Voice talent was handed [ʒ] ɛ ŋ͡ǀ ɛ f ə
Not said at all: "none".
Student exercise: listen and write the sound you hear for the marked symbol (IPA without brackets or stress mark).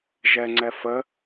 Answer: ʒ